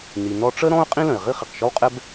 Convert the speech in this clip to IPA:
n i˩ n ɔ˧ ʈ͡ʂ ə˥ ɾ ɔ̃˥ ʊ̯ qʼ ĩ˥ l ə̃˩ ɪ̯ ʁ i˥ χ i˩ q ʃ ɔ˥ w qʼ ɛ˥ b

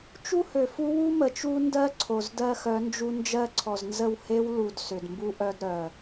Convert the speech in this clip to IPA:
t͡ʃ u˦ h ø˨ f u˦ w u˦ m ə˨ t͡ʃ u˦ n d ɜ˦ ǀʰ o˨ z d ɜ˦ x œ˨˦ n d͡ʒ u˦ n d͡ʒ ɜ˦˨ ǀʰ ɔ˨ z n z ə˦˨ w h e˦ w l u˨ d s ʏ˨ d m b u˦ ʔ œ˦ d ɾ œ˨

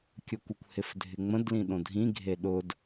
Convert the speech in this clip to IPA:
kʲ ʊ kʷ ə kʷ h ɪ f dʱ ɪ ŋ͡m ə̃ d l ĩ ɗ õ dʱ ĩ ɡʱ e ɗ ʊ d

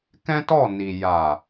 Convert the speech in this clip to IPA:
k ɛ̃˦ t ɔ˦˨ n i˨ j a˨

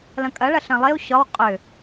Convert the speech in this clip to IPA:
l ɐ̃ kʼ ɐ ɭ ɐ ɬ ɐ̃ lˠ e u̯ ɕ ɒ w qʼ ʏ

